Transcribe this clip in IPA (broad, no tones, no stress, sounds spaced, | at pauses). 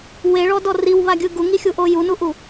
w e ɭ ɔ d ɔ r i w β a ɡʲ ɯ ɡ u ŋ i xʲ u ʔ o j u n u ʔ u